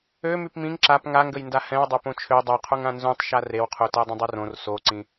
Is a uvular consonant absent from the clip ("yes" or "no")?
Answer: no